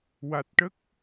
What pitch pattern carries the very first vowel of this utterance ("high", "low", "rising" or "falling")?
low